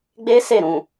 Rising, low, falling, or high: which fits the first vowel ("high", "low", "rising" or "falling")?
high